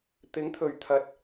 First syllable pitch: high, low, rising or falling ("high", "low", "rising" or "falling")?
rising